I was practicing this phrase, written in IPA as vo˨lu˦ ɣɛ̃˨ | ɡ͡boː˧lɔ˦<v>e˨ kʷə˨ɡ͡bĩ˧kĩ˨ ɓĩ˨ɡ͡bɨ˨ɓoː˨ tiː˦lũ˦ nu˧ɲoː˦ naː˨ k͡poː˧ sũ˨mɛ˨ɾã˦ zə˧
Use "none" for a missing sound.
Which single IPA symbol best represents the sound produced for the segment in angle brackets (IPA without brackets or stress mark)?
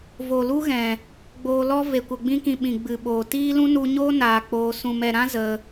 v